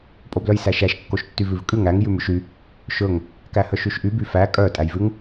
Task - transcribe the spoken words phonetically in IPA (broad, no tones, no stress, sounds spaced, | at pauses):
pʼ o b l œ j s æ ʃ æ ʃ kː o ʃ tː y v ʉ v kʼ ʉ ŋ æ ŋ j ʉ m ʉ ʃ y | ʃ ɵ ŋ | k æ h œ ʃ y ʃ ʔ y b y f æ kʼ œ tʼ æ j v ʉ ŋ